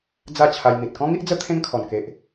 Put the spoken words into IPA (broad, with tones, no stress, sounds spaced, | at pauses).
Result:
d͡z a˥˧ t͡ɕʰ a˧ j n̪ i˨ t̚ k ɔ̃˦ ŋ i˦ ʔ d͡z ə˦ t̪ʰ ẽ˦ ŋ kʰ ɔ˨˩ n k e˨ ʔ